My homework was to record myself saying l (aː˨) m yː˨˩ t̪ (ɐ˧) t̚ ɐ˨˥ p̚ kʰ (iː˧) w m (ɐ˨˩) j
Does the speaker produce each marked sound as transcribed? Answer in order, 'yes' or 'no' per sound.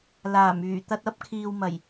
no, yes, no, yes

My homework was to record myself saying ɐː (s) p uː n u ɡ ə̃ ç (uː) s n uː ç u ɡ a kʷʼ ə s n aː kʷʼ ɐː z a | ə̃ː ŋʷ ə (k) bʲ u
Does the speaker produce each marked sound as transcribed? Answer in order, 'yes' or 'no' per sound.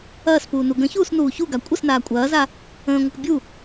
yes, yes, yes

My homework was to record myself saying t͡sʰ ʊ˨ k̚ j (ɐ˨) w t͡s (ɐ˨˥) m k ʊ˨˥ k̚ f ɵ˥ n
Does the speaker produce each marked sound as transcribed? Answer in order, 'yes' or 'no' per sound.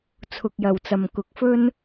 no, no

